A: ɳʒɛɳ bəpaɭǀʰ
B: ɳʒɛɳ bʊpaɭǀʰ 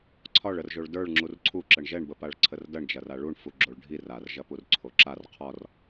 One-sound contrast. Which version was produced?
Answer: A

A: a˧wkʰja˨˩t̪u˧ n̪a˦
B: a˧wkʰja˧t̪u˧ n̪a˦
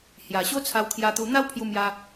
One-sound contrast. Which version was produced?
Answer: B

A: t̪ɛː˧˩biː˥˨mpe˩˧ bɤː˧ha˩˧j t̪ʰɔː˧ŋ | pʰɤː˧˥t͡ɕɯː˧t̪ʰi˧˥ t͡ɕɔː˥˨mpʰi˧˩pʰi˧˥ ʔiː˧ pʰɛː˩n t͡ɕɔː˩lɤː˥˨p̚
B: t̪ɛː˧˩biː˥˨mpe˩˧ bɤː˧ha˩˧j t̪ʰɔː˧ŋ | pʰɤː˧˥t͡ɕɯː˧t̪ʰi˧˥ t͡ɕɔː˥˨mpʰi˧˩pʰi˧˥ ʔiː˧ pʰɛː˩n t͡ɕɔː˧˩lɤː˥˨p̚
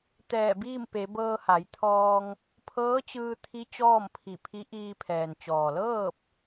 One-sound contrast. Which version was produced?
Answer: A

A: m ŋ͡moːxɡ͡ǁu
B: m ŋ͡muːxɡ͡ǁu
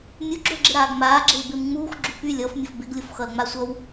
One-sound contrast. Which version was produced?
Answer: B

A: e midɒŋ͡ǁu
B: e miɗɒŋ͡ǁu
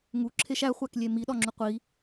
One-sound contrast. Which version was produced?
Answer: B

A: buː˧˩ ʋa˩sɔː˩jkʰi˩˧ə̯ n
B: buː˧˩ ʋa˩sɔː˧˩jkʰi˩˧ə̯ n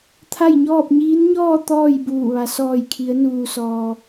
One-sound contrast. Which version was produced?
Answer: B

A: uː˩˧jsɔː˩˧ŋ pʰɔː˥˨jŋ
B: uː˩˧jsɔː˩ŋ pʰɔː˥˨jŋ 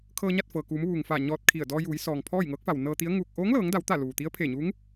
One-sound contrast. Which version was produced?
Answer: B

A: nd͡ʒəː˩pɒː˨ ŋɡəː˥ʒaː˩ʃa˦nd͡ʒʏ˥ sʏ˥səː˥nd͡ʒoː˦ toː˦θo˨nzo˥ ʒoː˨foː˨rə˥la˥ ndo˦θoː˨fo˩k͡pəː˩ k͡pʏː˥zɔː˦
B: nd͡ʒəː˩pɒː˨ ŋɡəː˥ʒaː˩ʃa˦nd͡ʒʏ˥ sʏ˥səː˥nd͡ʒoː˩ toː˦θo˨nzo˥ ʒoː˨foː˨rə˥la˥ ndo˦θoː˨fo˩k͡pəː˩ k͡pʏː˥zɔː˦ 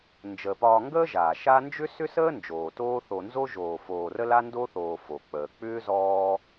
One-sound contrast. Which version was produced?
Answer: B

